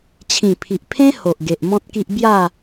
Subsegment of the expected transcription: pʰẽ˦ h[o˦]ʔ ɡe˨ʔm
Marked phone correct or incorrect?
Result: incorrect